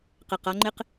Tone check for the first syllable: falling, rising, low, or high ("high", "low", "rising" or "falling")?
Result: low